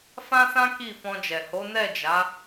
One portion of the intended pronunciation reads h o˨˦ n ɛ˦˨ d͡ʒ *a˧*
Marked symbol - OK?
no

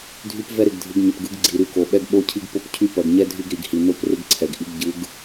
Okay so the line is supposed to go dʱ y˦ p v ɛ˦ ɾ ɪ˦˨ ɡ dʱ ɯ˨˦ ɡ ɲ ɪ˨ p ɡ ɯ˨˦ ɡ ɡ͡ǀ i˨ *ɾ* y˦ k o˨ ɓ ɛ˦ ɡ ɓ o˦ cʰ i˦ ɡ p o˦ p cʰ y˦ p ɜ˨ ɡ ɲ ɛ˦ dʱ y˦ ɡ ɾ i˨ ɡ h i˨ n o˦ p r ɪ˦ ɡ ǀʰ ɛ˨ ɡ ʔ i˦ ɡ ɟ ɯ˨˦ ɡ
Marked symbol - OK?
yes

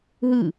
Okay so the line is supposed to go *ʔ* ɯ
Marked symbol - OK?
no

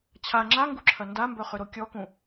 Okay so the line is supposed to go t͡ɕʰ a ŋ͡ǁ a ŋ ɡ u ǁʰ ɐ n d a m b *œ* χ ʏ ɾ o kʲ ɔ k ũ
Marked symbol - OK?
yes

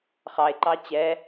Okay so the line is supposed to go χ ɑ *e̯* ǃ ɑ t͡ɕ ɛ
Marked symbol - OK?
yes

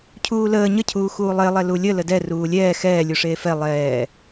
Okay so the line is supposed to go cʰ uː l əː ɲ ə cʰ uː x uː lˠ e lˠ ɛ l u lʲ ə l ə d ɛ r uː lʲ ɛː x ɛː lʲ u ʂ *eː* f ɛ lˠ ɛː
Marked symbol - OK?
yes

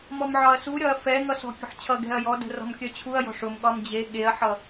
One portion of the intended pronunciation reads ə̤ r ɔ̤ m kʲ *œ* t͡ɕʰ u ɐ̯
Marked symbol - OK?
yes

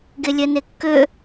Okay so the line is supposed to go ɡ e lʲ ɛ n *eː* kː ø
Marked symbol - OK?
no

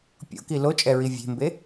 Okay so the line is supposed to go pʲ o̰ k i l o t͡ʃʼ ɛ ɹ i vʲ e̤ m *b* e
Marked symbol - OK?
yes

